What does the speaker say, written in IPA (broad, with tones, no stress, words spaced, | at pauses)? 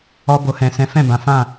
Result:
ɔ˧ bo˨hɛ̃˨sɛ̃˨˦ fɛ̃˦˨bã˨˦ fã˦˨